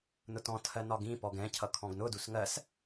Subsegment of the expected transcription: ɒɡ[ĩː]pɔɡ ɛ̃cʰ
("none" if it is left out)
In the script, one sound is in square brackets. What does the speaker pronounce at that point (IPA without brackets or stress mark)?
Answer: ĩ